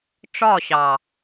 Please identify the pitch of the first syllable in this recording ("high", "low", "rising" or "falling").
falling